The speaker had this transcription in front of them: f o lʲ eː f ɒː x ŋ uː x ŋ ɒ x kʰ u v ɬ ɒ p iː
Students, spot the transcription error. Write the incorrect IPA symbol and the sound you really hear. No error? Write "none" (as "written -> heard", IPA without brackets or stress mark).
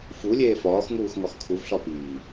o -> u